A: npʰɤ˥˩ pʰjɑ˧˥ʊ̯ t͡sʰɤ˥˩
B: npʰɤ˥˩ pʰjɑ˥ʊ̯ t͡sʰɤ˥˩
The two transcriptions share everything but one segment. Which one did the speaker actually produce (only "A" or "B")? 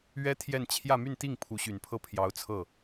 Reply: A